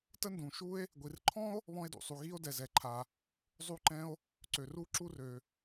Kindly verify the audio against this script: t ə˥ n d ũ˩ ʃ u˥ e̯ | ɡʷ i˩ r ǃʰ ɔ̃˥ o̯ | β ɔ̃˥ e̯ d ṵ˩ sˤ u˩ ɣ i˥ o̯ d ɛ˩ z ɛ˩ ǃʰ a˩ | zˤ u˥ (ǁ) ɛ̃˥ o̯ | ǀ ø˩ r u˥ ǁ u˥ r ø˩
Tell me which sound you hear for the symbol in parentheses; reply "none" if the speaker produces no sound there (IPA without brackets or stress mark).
ǃ